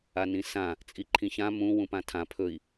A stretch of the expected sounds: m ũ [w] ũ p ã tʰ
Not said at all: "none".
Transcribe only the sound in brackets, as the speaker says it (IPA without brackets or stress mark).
w